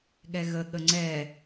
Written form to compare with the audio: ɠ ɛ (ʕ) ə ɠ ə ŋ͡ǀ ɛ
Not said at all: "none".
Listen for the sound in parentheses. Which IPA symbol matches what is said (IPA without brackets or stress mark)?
ɣ